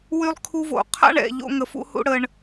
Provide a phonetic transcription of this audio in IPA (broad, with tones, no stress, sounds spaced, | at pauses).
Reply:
w y˧ lˠ kʰ u˧ v o̰˨ qʰ a̰˦ ɳ ɛ̰˨ ʎ o̰˦ ŋ ə˧ f ṵ˦ h ṵ˦ ɽ ə˧ ɳ